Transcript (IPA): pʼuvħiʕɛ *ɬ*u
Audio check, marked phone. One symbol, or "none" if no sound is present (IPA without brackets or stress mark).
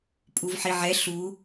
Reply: ɬ